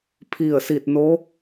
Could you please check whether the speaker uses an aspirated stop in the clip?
yes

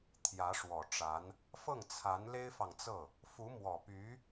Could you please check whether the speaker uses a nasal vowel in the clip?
no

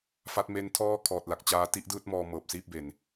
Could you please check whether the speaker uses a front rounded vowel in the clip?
no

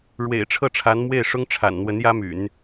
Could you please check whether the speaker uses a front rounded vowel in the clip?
yes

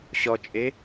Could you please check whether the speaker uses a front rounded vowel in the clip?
no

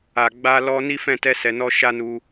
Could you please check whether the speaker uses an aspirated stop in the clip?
no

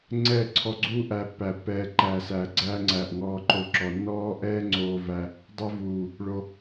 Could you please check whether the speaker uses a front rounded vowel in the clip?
no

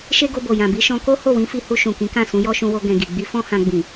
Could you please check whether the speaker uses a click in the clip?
no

